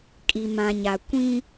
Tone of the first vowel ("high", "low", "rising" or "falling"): low